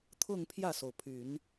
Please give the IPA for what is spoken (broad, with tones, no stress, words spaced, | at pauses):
t̪ʰʊ˥˧ŋ pʰjä˥˩so˩ʊ̯pʰy˨˩˦n